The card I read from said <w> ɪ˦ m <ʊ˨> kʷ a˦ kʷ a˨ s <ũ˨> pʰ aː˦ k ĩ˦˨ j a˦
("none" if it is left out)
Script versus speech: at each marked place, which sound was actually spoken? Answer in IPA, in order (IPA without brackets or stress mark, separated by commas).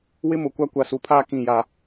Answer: w, ʊ˨, u˨